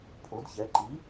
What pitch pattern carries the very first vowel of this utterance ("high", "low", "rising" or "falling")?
rising